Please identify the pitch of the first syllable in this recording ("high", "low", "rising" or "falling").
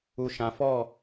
low